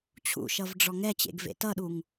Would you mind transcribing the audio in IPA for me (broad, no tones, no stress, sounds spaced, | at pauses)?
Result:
t͡ɕʰ ṵ ʃ ʌ v ɖ͡ʐ ɔ ŋ ɛ t͡ɕ ḛ ɡ v ḛ t ʌ ɗ u ŋ